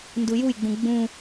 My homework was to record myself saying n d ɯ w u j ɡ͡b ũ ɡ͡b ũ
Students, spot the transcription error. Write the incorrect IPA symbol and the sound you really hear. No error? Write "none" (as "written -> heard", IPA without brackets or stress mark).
w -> j